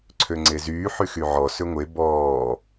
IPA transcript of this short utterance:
ǀʰ ø ŋ͡ǀ e z yː ħ y x y ʕ ɔ s ø ŋʷ e b ɔː

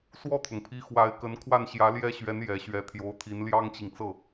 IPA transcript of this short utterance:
s w ɔ˥˩ t̪ʰ ʊ˩ ŋ pʰ i˧˥ x w a˧˥ ɪ̯ k ə˧˥ n kʰ w a˥˩ n ɕ j ä˧˥ l j ɛ˥ ɕ ɥ ɛ˧˥ n j ɛ˨˩ ɕ ɥ ɛ˧˥ t̪ʰ j o˧˥ ʊ̯ t̪ʰ i˧˥ n l j ɑ˥ ŋ t͡ɕ i˨ ŋ t͡s ɤ˥˩

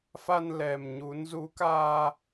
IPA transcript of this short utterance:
f a˧ n l ɛ˨˩ m ɲ u˨˦ n z u˨˦ k aː˧

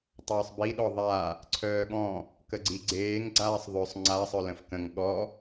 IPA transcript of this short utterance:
tˤ œː sˤ b i ɗ ɔ ðˤ a | ǀʰ œː ɠ ɔ̃ | k ə ɡ͡ǀ i ɡ͡ǀ eː ŋ ɡ͡ǀ aː sˤ ðˤ ø sˤ ŋ͡ǀ a sˤ œ l ə̃ f k ə̃ ŋ ɠ ɔ

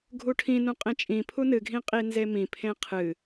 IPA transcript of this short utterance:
ɡʱ u ʈʰ ĩ n ũ qʼ ẽ t͡ʃʼ ĩ pʰ u n ɨ ɡʱ ĩ qʼ i n z e m ĩ pʰ ẽ qʰ ɨ

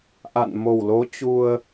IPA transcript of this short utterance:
ʔ a̰˧˨ n m o˨˩ w l o˨˦ t͡ɕ u˧ ə̯

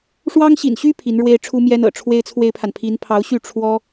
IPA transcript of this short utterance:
ʂ w ɑ˥ ŋ ɕ ḭ˨˩ n ɕ y˥ pʰ i˧˥ n ɻ w e˥ ɪ̯ ʈ͡ʂʰ u˥ m j ɛ˥ n ɤ̰˨˩ ʈ͡ʂʰ w e˥ ɪ̯ t͡sʰ w e˥ ɪ̯ pʰ a˨ n pʰ i˧˥ n pʰ ɑ˧˥ ʊ̯ ɕ y˥˩ ʈ͡ʂʰ w ɔ˥

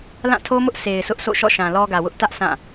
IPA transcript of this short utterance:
l ã˦˨ tʰ o˦ m ʊ˦ ʔ s e˨ ɪ̯ s ʊ˦ ʔ s o̰˦˨ ʃ ɔ̰˦˨ ʃ ã˨ l ɔ˦ ɡ ä˨ w ʊ˦ ʔ t ä˦ ʔ sʰ ã˦˨

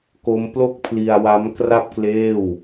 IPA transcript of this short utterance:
k o˦˥ m p l o˥˩ k̚ pʰ l i˧ a̯ w a˦˥ m k r a˥˩ p̚ k l eː˥˩ w

